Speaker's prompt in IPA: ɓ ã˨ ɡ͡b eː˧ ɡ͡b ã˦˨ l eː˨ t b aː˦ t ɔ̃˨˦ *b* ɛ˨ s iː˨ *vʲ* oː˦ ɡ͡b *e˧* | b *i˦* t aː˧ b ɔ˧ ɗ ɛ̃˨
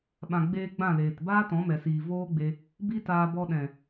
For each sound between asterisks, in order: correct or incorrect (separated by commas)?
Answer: incorrect, incorrect, correct, correct